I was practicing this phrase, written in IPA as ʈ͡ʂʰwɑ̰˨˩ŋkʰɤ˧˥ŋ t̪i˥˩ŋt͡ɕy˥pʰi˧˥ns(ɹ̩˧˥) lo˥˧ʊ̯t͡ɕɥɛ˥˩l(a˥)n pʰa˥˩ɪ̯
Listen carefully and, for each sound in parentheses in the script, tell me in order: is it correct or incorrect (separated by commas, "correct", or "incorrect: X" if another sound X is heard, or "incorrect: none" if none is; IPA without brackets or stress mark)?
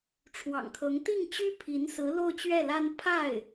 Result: correct, correct